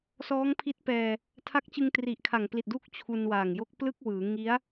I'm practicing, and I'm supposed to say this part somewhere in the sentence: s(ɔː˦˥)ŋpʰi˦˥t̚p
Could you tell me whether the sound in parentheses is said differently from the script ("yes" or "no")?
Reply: no